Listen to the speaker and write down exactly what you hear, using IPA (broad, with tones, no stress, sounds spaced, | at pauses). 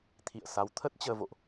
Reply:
t̪ʰ ḭ˧˨ ə̯ s a˨˦ w t̪ʰ ə˦˥ t̚ t͡ɕ əː˧ v o̰˧˨ ʔ